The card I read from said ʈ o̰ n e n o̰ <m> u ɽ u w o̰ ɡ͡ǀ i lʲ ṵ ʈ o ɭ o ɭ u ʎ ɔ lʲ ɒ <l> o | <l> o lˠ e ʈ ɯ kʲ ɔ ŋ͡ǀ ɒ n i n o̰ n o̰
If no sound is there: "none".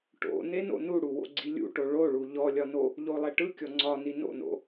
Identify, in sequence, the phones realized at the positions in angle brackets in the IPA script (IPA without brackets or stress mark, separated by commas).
n, n, ʎ